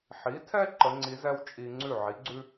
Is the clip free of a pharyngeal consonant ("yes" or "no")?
no